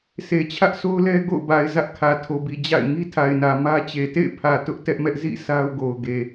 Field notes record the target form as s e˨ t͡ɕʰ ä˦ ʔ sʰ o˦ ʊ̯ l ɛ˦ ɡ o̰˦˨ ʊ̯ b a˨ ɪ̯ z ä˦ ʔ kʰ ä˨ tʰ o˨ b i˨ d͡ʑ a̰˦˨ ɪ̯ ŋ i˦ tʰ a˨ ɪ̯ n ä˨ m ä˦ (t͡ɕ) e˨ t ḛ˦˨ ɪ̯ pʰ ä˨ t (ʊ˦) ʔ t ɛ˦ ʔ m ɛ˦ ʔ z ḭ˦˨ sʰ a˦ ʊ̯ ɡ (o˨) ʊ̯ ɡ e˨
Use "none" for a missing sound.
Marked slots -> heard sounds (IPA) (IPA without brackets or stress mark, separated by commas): t͡ɕ, ʊ˦, o˨